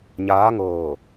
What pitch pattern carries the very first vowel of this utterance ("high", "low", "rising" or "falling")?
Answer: rising